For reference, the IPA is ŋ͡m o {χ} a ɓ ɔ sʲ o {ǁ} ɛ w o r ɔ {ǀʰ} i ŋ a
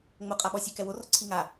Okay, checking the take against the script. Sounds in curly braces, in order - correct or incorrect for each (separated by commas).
incorrect, incorrect, correct